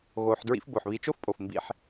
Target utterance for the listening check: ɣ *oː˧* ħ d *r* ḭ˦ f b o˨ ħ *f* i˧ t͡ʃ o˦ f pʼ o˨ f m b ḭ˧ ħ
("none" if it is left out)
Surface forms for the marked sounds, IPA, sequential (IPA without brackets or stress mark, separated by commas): oː˧, ɹ, β